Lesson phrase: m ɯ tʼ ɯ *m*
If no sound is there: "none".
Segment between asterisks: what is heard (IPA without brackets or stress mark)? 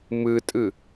none